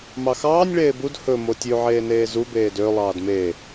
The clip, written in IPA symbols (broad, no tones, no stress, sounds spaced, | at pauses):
m ɑ x ɑː nʲ ɭ eː b u d h ɵ m o tʲ ʉ ʕ eː n eː z u b eː d ø lˠ ɑː d m e